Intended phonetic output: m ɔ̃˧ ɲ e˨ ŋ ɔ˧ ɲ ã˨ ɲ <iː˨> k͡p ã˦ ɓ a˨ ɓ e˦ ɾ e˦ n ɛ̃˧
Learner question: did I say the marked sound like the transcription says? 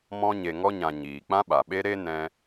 yes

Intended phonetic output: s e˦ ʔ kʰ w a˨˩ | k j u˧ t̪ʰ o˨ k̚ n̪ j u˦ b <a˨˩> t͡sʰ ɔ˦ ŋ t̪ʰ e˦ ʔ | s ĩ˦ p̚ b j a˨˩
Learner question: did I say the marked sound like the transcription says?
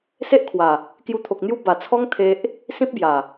yes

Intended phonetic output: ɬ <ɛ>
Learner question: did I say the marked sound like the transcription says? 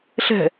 no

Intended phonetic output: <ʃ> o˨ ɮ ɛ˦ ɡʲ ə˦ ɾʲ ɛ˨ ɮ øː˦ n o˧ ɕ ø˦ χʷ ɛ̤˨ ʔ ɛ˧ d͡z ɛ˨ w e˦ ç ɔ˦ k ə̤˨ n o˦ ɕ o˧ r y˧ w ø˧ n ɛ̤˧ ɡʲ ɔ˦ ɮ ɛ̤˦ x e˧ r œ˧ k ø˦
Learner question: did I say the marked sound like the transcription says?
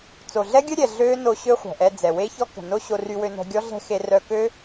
no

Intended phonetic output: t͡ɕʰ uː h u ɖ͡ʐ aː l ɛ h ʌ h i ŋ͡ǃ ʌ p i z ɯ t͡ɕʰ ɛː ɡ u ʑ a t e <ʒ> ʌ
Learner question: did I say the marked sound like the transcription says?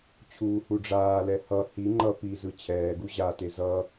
no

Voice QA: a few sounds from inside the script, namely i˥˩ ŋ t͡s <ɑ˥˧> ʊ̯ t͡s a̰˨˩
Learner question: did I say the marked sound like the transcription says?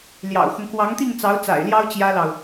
no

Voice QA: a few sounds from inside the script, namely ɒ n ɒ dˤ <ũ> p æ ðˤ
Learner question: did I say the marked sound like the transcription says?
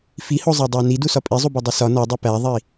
no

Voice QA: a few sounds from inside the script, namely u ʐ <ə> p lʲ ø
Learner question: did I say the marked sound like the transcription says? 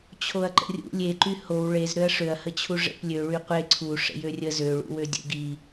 no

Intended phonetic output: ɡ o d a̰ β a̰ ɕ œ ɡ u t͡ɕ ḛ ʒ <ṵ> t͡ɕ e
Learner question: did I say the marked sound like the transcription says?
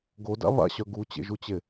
no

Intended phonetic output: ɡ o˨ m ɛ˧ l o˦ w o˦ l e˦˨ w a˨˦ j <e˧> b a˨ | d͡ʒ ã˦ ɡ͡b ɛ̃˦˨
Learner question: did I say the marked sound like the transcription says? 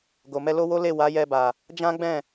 no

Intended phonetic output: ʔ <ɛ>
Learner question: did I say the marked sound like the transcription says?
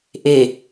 no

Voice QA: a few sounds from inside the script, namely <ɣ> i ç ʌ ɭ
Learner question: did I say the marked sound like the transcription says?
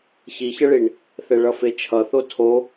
no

